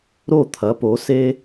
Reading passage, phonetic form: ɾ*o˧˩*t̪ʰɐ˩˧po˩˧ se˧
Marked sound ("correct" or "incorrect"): correct